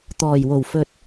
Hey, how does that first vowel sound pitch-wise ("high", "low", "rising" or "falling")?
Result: low